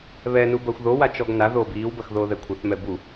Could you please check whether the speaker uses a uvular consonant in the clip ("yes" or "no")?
no